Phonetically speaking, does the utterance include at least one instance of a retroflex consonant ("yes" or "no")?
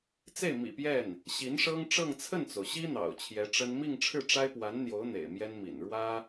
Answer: yes